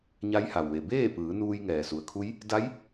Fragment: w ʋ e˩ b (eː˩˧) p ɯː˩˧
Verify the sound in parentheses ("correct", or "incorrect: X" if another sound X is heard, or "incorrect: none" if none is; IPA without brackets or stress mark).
incorrect: eː˥˨